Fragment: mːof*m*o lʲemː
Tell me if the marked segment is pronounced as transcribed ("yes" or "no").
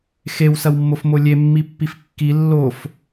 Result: yes